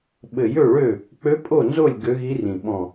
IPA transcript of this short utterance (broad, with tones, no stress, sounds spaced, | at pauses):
ɓ ɘ˨˩ j ø˥˩ ɭ ø˥˩ | k͡p ø˧˥ pʼ o˥˩ n z o˥˩ lʲ ɡ ø˧˥ ɣ i˧˥ r ĩ˨˩ ɓ ɔ̃˨˩